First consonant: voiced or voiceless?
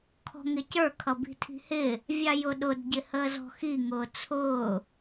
voiceless